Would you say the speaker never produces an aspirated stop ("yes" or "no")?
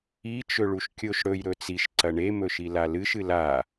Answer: yes